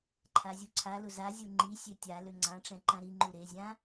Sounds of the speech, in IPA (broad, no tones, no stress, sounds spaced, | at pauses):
ǃʰ a zʲ u ǀʰ a l ʊ z a zʲ u ŋ͡ǃ i sʲ ø tʲ a l ø ŋ͡ǀ ã ʈ͡ʂ ɛ̃ ǃ ã ɾ i ŋ͡ǃ u ɾ e zʲ ã